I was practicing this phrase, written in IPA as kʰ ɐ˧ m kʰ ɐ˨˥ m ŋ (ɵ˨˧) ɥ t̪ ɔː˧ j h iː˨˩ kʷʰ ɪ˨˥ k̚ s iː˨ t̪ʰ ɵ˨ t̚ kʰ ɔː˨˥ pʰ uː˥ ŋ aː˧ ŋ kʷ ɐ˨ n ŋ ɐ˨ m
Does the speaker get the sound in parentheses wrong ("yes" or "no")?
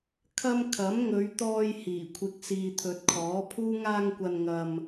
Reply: no